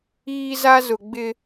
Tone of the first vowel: high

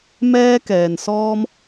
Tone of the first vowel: high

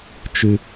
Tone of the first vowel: low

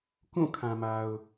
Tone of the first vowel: falling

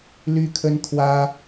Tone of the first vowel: high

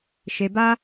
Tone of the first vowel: low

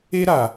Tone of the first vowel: high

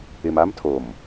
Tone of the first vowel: low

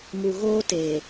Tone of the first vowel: low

